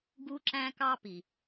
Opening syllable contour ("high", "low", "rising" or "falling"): high